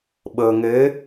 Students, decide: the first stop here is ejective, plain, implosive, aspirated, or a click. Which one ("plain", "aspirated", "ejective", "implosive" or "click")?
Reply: implosive